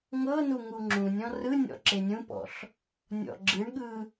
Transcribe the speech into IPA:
ŋ ɤ n u ŋ u ŋ͡ǁ ũ nʲ ɔ̃ r ɯ nʲ ɔ̰ ǁ e nʲ ũ p ɔ̰ ɬ | nʲ ɔ̰ ɡ͡ǁ ɯ ɳ ɠ ɯ

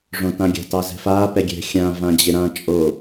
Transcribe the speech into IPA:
ʐ õ t ã ɡʲ a̤ t ɑ z ɛ̤ f a p ɛ ɡʲ ɛ̤ xʲ ã v ã d͡ʑ ɪ ɾ ã t͡ʃʼ o

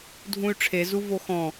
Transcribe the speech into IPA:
dʱ ũ y̯ ʈ͡ʂʰ e z u v o x ɔ̃

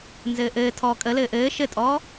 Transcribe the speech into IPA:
n z ɘː ʔ ɘː tʰ ɔː kʼ ə l ɘː ʔ ɘː ʃ ɘ tʼ ɔː

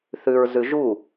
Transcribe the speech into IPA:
θ ʉ ɹ z ʉ ʒ u

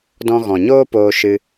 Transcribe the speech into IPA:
d ɔ̃˧ ɣ ɔ̃˨ ɲ oː˦ p oː˧ ʃ ɨ˧

